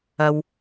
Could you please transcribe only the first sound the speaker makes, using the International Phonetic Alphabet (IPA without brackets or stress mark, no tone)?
ɐ